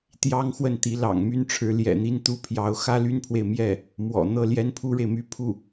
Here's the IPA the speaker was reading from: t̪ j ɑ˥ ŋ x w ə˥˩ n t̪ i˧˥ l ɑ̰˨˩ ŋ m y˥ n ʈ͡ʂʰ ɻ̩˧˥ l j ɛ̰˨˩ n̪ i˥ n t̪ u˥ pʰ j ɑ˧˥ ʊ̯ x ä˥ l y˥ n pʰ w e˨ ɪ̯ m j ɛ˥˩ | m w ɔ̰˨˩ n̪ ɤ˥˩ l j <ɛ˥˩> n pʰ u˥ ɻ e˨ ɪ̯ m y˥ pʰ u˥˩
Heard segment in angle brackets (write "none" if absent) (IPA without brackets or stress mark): ɛ˥